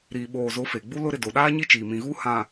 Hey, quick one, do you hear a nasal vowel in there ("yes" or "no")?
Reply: yes